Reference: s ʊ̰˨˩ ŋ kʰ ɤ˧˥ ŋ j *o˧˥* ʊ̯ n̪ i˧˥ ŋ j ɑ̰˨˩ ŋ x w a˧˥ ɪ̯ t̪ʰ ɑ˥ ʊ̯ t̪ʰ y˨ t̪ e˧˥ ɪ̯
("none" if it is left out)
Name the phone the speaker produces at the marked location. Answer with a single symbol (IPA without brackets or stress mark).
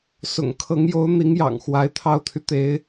o˧˥